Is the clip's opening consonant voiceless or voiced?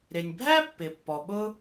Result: voiced